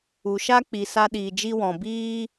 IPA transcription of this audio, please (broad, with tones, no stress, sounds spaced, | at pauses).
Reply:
u˨ ʃ a˦ k͡p i˨ s a˧ ɗ iː˨ d͡ʒ i˧ w ɔ̃˨ b iː˦